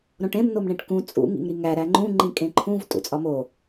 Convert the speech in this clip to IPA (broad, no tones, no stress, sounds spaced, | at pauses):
ɾ õ ʈ ẽ m n o m ɳ ẽ ʈ k ũ t͡sʼ ṵ ŋ ḭ ŋ ɾ i ŋ æ ɾ æ ŋ͡ǃ ũ ŋ͡ǃ ĩ kʼ ẽ ǃʰ ũ v tʼ ṵ t͡sʼ ɒ m o